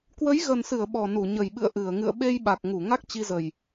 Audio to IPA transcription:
k w ə˨˦ j ɣ ə˨˩ n s ɨ˧˩ ə̯ ɓ ɔ˨˩ n u˧˩ ɲ ə˨˩ j ɓ ɨ̰˧˨ ə̯ ʔ ɨ˧˩ ə̯ ŋ ɨ̰˧˨ ə̯ ɓ e˧ j ɓ a˨˩ k̚ ŋ u˧˩ ŋ a˦˥ k̚ t͡ɕ i˧ z ə˨˩ j

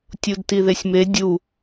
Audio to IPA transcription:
tʲ u d t i ð e sʲ m e dʲ u

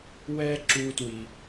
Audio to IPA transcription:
w ɛ˥ ǁ u˧ t w i˩

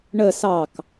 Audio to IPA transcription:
ɳ ə s ɑ k

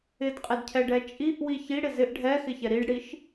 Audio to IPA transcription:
ɪ d qʼ ɪ d cʰ ɛ ɖ ɛ t͡ʃʼ i ʔ w i ç i ɽ ɪ z ɪ ʔ ɖʱ ɛ x ɪ ç ɛ ɾ i ɖ ɽ i ʃ

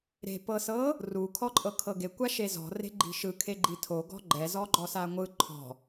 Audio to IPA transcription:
ɾ e̤ p ɤ s ɤ | r u kʰ ɔ ǃʼ ɤ kʰ ɤ ɡ e kʷ a ʃ e z ɔ̤ r e̤ ɡ͡ǃ i̤ ʃ ɯ kʰ e ɡ͡ǃ i tʰ o ɡ ɔ̤ ɡ͡ǃ ɛ z ɔ ɡ͡ǃ ɔ s a ŋʷ ɯ ǃʰ ɔ̤

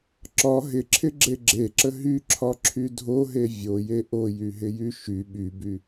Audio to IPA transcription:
ǁ ɒ ɦ ɪ ǁʰ ɪ ɡ͡ǁ e ɡ͡ǁ e ǁ ə ɦ y ǁʰ ɒ ǁʰ y dʱ o ɦ e vʲ o j e ʔ o j y ɦ ɪ j y ʃ y ɓ y b y

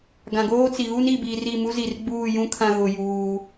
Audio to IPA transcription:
ɡ ã˨ ɡ oː˦ t͡s i˨ ɣ u˦ n i˨ b iː˨ r i˦˨ m u˦ z i˨ r ɡ͡b uː˦˨ j ũ˦ kʰ ã˨ ɣ ʊ˨ j uː˦

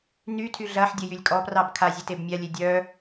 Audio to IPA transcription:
n y tʰ y ɮ ɐ ħ dʲ ə j y lʲ kʼ ɔ p r ɑ b kʰ a zʲ e t e b mʲ a lʲ e dʲ œ

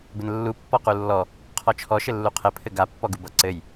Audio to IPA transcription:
b ɘ n lː u pː ɔ q u lː ɔ | qʰ ɔ t͡ʃʰ ɔ ʃ ɘ lː u qʰ ɘ pʰ ɘ ɡ a pː ɔ ɡ u b ʌ ǀ ɘ j

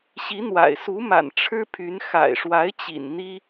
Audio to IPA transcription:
ɕ i˧˥ n̪ w a̰˨˩ ɪ̯ s u˧˥ m a̰˨˩ n ʈ͡ʂʰ ɻ̩˥ pʰ y˧˥ n x a̰˨˩ ɪ̯ ʂ w a˧˥ ɪ̯ t͡ɕ ḭ˨˩ n n̪ i˥

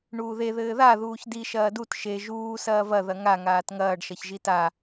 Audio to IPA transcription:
ɳ uː ð e ð ɘː ð a ð uː ç d i ʃ ɐː d u t ʃ e ʒ uː s ɐː v ɐ ð ɐ ŋ a ŋ aː t ŋ ɐː ɖ ʃ ɐ ç ʒ i t a

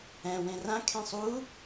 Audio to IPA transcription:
ɛ̃ w ẽ r ã kʰ ẽ sˤ u

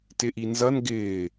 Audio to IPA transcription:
t ɪ ʔ i n z ʌ n ɡ ɪː

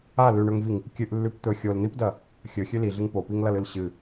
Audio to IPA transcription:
a l ʉ ɳ ɵ ŋ v i ŋ | kʲ ɨ ʔ lː ʉ p t̪ ɵ xʲ o l n̪ i p d ɐ | xʲ ɵ xʲ ʉ l i ɮ ɨ ŋ p o p i ŋ l ɐ l ɨ l ɕ ɨ

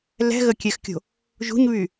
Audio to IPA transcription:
l ɛ̤ ɣ ə kʲ ɛ x kʲ o̤ | ʒ ṳ ɲ β y

